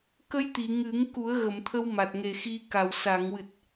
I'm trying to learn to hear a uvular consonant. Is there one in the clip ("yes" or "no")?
no